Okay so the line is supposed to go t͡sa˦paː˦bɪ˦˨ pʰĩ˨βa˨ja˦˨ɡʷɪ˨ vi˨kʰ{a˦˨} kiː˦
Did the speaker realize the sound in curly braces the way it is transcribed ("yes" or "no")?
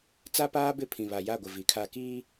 yes